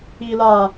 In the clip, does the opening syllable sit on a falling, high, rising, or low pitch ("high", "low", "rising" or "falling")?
low